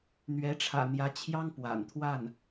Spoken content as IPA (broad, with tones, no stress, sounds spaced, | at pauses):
n̪ ɥ ɛ˧˥ ʈ͡ʂʰ ä̰˨˩ n̪ j ä˧˥ t͡ɕʰ j ɑ˥ ŋ p w a̰˨˩ n t̪ʰ w a˥˩ n